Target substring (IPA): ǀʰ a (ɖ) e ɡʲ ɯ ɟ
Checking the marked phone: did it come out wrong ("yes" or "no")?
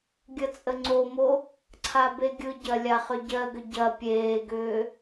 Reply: yes